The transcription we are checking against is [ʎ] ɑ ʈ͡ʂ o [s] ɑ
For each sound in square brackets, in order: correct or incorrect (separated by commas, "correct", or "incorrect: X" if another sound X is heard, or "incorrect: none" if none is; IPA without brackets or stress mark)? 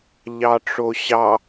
correct, incorrect: ɕ